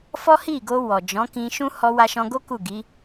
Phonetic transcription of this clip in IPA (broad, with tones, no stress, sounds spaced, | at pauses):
f ɔ˦ h i˦˨ ɡ o˧ w ɔ˨ d͡ʒ ɔ̃˨˦ k ĩ˧ ʃ ũ˦ h ɔ˧ w a˧ ʃ ɔ̃˧ ɡ o˦ k u˦˨ ɡ i˨˦